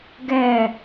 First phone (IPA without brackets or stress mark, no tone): ɡ